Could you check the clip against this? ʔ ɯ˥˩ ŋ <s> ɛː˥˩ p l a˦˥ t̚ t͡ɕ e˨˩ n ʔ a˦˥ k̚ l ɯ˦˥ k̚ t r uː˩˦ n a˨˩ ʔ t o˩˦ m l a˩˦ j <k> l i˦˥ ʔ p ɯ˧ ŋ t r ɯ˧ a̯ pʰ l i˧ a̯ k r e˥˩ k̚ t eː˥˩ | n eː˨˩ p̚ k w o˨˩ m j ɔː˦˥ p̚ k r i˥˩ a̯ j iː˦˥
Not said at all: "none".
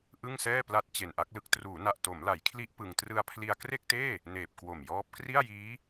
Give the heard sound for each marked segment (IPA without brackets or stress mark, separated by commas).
s, kʰ